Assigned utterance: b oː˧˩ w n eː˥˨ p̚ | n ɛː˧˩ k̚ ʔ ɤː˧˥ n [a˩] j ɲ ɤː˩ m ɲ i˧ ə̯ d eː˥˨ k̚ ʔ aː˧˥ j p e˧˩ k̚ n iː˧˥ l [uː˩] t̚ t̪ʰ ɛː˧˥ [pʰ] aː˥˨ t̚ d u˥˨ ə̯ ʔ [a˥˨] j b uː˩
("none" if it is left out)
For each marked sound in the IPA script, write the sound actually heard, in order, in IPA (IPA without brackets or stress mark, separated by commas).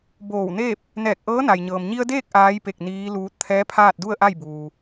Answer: a˩, uː˧, pʰ, a˥˨